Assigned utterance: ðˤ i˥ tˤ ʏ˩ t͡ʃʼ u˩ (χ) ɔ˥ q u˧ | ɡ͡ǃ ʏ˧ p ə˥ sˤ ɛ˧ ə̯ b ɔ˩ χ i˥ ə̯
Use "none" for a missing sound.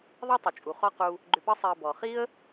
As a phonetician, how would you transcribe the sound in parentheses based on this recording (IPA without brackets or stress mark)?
χ